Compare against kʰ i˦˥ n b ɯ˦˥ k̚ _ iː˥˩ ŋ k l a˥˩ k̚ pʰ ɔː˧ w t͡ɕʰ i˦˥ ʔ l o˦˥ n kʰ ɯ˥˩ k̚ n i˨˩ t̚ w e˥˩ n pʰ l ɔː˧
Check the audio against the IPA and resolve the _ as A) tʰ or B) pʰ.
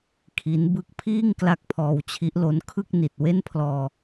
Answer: B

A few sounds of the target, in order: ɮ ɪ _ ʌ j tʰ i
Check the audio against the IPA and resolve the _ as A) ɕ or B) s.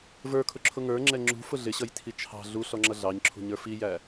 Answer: A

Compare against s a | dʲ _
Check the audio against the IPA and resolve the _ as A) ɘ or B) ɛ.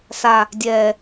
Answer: B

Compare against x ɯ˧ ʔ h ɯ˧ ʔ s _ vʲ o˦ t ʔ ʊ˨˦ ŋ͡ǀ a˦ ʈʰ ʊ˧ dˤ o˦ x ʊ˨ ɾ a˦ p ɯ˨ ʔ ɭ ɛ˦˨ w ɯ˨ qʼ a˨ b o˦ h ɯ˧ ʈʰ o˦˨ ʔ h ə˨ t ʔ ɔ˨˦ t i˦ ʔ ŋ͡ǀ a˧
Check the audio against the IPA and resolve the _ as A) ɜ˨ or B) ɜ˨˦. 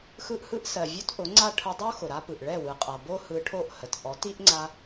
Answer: A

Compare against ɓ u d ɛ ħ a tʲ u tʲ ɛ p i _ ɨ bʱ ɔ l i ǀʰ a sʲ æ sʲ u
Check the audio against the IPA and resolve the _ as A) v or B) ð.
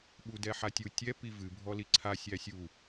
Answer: A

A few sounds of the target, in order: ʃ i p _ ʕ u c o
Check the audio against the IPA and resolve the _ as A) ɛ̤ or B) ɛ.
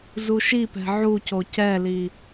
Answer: A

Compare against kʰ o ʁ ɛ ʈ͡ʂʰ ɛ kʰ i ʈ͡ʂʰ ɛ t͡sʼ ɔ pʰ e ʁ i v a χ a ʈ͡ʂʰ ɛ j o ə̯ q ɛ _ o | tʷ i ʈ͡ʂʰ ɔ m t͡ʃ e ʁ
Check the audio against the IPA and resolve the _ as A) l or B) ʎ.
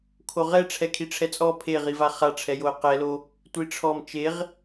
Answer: A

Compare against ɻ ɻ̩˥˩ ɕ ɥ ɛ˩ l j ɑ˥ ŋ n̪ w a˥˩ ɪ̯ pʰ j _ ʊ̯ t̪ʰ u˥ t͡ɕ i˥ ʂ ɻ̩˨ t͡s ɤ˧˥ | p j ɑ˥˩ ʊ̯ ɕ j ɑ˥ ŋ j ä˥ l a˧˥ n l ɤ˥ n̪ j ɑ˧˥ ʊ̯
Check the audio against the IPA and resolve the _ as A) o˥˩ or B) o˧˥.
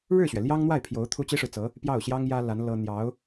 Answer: B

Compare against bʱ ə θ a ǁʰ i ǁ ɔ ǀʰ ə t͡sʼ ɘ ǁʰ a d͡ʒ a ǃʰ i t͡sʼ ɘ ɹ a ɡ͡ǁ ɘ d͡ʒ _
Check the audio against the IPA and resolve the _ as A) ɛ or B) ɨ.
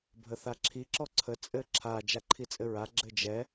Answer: A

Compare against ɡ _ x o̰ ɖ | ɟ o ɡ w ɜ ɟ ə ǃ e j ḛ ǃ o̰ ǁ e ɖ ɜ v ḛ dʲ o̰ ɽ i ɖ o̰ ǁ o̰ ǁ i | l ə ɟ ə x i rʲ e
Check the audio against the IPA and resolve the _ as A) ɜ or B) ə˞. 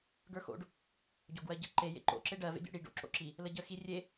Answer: B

